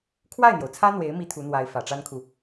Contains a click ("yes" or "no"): no